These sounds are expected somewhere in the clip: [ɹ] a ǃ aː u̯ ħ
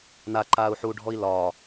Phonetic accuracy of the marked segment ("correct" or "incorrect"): incorrect